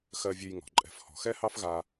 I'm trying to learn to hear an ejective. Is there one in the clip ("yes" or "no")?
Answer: yes